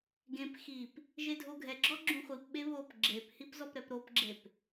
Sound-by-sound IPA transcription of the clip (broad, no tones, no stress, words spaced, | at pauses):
ɡẽp xip | ʒedʱoɡʱɛɡ͡ǁɔ ɡ͡ǁũχʷipɓe βop ɡ͡ǁephip zɔpɾɛpɾopɡ͡ǁep